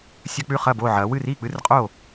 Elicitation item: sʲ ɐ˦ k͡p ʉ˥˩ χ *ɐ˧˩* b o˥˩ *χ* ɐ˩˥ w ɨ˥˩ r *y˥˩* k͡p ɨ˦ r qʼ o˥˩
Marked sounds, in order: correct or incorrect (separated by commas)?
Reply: incorrect, incorrect, incorrect